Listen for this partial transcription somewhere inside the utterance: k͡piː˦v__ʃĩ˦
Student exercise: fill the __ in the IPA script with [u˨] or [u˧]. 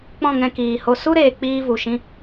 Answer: u˨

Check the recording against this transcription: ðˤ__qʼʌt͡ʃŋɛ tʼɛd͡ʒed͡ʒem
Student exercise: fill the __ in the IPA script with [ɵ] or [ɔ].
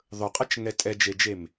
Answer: ɵ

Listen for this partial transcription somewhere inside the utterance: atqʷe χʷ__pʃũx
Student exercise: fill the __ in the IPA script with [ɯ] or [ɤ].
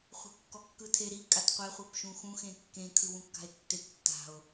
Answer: ɤ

